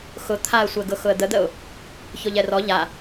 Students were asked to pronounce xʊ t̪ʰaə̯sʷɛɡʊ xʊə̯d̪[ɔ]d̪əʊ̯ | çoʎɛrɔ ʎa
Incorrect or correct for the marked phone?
incorrect: ə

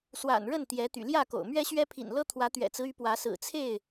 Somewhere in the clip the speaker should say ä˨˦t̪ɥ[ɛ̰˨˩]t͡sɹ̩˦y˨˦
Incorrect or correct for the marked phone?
correct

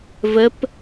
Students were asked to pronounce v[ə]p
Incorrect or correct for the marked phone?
correct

